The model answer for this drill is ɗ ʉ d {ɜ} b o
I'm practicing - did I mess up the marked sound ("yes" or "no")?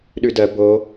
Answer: no